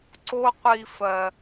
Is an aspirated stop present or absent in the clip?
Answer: absent